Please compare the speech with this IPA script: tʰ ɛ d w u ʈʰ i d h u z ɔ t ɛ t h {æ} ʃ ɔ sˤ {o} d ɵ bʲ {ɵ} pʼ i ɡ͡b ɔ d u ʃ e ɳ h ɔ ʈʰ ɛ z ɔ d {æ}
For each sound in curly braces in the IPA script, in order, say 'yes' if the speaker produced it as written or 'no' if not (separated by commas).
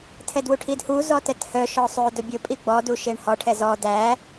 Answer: no, no, yes, yes